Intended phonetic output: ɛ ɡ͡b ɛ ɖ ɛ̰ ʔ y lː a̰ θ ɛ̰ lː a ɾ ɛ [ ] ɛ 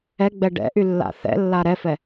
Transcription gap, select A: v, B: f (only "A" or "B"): B